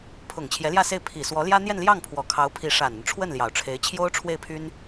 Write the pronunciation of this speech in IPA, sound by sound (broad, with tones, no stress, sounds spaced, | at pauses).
pʰ ʊ˨˩ ŋ t͡ɕʰ j ɛ˧˥ l j ä˥˧ s e˥˩ ɪ̯ pʰ i˨˩ s w ɔ˧˥ l j ä˥ n̪ j ɛ˥˧ n l j ɑ˥˩ ŋ pʰ w ɔ˨˩ kʰ ɑ˧˥ ʊ̯ pʰ i˧˥ ʂ a˨˩ n ə˦ n ʈ͡ʂʰ w ə˥˩ n l j ɑ˨˩ ʊ̯ ʈ͡ʂʰ e˧˥ ɪ̯ t͡ɕʰ j o˥ ʊ̯ ʈ͡ʂʰ w e˥˩ ɪ̯ pʰ y˥ n